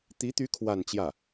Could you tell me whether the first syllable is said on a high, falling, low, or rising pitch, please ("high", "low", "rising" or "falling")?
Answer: rising